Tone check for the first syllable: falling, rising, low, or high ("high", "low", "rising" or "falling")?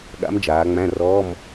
rising